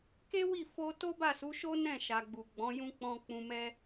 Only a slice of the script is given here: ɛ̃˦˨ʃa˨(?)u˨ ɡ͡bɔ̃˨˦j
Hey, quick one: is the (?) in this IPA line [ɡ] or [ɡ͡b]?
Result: ɡ͡b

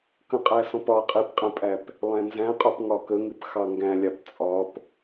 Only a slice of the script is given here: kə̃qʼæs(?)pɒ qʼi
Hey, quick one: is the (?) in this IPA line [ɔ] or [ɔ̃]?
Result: ɔ̃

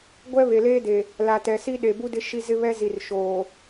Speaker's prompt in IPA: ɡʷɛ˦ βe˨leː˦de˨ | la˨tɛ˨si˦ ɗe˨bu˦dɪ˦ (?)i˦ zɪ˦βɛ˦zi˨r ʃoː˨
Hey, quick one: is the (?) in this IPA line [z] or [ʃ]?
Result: ʃ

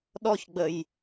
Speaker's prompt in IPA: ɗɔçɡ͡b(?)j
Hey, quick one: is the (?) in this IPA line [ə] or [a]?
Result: ə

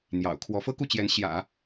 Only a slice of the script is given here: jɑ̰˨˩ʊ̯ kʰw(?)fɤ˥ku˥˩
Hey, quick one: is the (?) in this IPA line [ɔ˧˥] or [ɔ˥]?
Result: ɔ˧˥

